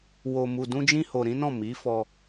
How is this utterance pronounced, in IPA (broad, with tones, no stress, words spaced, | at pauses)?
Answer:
wo˨mu˨dũ˧ d͡ʒĩ˦ho˧ɾĩ˦nɔ̃˦˨ mi˨˦ fɔ˧